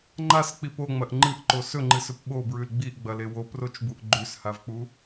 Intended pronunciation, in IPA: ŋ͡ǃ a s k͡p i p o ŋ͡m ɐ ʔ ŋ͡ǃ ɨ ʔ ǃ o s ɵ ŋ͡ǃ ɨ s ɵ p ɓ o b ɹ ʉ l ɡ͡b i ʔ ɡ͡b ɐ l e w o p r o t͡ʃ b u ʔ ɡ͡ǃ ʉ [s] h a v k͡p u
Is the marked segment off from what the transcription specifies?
no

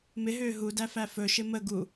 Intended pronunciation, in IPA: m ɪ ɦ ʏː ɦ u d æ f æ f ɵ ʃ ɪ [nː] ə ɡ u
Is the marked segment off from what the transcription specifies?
yes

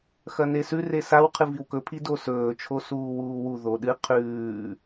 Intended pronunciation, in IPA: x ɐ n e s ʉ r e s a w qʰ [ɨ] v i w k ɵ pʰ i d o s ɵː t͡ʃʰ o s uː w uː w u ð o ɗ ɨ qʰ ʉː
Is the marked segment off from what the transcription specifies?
no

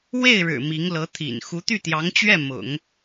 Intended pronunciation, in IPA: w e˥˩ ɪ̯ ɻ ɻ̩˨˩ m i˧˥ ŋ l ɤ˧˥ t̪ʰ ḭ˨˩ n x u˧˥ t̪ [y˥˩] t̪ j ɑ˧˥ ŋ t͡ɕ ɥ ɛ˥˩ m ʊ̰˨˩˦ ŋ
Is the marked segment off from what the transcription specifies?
no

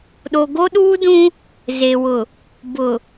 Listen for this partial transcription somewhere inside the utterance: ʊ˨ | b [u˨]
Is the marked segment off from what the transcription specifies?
yes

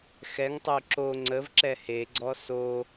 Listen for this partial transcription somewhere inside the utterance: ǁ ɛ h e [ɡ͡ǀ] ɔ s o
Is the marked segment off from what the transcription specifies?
no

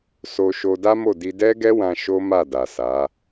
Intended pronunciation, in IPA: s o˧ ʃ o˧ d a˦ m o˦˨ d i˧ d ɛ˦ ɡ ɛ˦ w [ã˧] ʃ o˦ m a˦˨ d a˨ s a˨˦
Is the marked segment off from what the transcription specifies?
no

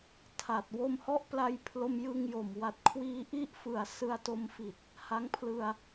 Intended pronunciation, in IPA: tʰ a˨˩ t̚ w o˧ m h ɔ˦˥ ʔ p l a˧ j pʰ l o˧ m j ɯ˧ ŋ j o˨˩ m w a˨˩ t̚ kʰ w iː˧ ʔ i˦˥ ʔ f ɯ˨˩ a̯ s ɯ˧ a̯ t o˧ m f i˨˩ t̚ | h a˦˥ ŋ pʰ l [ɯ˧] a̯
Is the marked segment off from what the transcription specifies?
no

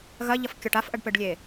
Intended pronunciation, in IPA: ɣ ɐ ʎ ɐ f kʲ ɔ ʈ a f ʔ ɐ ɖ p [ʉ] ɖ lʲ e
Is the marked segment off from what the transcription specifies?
yes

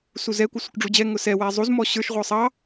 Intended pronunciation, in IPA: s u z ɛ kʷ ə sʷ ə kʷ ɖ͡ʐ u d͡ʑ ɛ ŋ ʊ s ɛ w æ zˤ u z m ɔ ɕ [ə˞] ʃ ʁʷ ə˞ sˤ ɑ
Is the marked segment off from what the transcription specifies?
no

